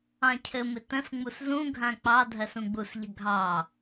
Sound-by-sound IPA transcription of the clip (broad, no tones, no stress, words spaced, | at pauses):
ɑ̃cʰɘmɪ tə̃s ŋ͡muszũ ɡʱãk͡pɑ dʱɜsũɡ͡busʎə ɡʱɑ